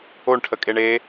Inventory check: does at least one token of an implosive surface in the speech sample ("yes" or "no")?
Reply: no